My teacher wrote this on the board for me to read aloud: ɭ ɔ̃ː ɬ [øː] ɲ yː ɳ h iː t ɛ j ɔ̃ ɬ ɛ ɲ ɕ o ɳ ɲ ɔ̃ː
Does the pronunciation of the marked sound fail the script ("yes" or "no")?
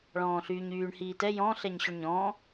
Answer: yes